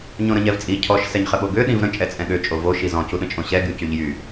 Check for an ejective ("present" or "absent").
present